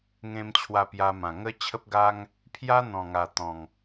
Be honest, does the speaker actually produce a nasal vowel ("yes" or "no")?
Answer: yes